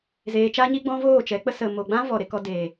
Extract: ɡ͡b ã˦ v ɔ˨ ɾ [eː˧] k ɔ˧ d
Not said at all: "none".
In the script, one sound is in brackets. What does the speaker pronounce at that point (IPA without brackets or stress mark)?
e˧